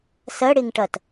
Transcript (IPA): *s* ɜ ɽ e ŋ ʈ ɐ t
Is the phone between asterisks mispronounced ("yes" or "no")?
no